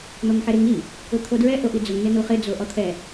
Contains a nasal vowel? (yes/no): no